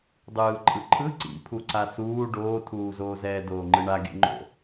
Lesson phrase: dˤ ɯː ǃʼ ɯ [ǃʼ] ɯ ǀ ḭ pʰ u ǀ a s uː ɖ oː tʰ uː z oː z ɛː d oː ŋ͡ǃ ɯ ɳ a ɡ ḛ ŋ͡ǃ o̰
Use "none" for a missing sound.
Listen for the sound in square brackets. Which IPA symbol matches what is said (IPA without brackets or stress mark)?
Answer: ǃʰ